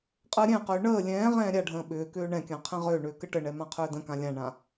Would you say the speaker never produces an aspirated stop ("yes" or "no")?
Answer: no